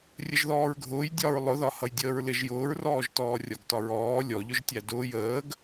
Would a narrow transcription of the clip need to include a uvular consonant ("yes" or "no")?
no